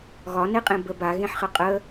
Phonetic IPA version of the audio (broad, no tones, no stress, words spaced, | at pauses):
ɣɒneqʼẽ bəb aɣẽħχə qʼə